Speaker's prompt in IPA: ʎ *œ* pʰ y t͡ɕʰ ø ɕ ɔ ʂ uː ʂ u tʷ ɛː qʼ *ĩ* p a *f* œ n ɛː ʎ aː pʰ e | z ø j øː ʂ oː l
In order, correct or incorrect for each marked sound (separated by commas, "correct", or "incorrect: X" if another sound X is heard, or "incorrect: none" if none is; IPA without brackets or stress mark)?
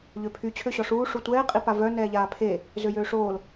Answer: incorrect: ø, incorrect: i, incorrect: v